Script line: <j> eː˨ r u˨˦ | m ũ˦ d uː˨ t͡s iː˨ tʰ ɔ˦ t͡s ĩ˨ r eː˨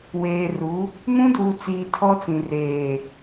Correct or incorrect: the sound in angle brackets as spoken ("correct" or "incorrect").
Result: incorrect